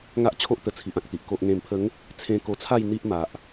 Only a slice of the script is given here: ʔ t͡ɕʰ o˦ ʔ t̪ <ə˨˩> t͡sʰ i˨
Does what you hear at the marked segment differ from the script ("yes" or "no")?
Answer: no